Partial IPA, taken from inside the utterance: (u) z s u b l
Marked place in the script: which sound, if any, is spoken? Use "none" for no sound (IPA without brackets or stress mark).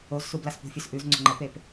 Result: o